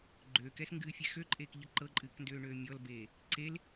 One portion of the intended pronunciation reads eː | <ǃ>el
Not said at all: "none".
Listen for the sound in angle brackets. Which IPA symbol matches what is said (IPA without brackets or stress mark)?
ǀ